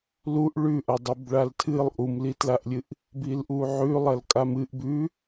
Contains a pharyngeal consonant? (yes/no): yes